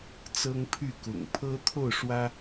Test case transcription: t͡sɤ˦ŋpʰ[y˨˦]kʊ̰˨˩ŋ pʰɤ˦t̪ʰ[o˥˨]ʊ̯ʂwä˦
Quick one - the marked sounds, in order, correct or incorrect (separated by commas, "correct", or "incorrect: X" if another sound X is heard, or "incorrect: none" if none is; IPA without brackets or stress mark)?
incorrect: y˥˨, correct